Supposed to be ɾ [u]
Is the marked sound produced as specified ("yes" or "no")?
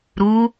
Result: yes